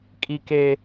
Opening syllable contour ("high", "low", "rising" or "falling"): high